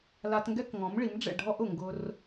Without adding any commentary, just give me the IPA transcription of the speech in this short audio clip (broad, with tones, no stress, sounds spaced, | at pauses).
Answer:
l a˧ t ŋ ɡ ɛ˦ k ŋ ɔ̃˨˦ m ɭ i˨˦ m ɖ͡ʐ ɛ̰˦˨ ɖʱ ɔ˦ ʔ ʊ˨ ŋ ɡ ʊ˧ r